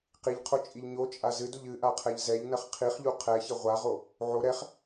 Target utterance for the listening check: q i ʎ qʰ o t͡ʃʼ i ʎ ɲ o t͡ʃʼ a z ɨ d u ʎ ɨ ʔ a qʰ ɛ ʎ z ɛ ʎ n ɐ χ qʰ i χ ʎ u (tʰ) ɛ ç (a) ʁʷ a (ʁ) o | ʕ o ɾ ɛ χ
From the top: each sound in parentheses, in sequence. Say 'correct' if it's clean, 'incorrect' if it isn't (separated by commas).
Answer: incorrect, incorrect, correct